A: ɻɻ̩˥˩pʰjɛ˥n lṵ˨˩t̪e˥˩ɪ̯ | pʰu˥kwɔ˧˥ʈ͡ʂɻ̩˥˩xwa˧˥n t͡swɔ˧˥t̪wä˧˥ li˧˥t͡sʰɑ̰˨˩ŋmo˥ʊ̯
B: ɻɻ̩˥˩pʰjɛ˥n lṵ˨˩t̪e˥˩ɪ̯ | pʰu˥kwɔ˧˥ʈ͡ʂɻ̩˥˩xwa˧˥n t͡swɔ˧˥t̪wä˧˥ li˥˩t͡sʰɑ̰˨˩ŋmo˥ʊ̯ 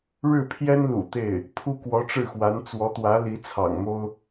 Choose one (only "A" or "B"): A